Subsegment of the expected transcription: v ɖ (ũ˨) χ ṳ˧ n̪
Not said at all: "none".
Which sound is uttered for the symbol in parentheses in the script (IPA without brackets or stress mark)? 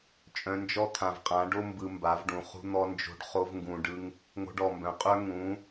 ũ˨